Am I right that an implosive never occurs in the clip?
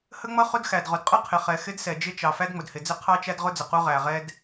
yes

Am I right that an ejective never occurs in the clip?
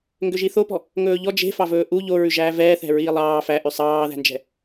yes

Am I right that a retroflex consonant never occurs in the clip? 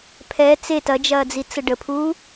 no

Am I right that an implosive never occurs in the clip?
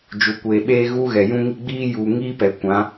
no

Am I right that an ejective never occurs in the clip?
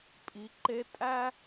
no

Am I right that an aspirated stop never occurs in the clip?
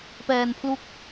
no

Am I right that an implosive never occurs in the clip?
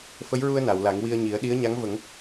no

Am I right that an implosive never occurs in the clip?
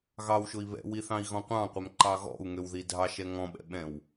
no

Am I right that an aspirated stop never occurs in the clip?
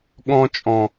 yes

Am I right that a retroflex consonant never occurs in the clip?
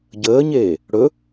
no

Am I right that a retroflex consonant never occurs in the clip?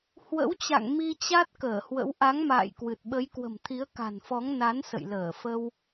yes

